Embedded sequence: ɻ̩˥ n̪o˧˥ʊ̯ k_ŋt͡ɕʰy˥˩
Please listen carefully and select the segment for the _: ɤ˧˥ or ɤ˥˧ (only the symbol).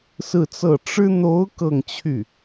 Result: ɤ˥˧